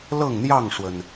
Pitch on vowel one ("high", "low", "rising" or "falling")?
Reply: falling